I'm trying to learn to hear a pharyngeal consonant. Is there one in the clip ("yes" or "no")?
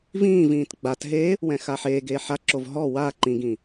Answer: yes